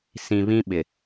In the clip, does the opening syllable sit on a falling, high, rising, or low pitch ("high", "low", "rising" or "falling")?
low